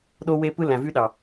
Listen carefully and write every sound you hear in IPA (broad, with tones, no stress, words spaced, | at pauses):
ɗo˦we˦ pɯ˦læ̃˨vy˦ɗɑ˨